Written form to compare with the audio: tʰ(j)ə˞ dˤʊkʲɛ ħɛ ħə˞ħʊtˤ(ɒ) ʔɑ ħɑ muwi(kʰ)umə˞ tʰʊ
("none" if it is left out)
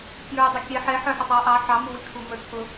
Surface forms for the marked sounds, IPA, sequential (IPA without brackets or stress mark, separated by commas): j, ɑ, kʰ